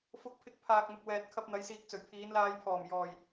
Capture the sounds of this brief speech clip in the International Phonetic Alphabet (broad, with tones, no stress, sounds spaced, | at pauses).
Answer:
f ʊ˧ k̚ pʰ ɪ˧ k̚ pʰ aː˨ k̚ n̪ ʊ˨ k̚ w ɛː˨ t̚ kʰ ɐ˧ p̚ n̪ ɐ˨˧ j s iː˨ k̚ t͡s ɵ˨˩ ɥ pʰ iː˨˧ n l aː˧ j pʰ ɔː˨˩ m j ɔː˨˩ j